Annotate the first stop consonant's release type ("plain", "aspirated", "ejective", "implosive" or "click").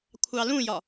aspirated